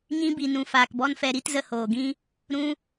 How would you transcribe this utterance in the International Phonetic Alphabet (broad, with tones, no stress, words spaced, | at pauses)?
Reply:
ɲĩ˧bi˨nũ˨ faː˨kbɔ˦nfɛ˧ ɾi˦tzə˧hoː˨ɡĩ˦ | ɾũ˧